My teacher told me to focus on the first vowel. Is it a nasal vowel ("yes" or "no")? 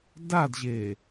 no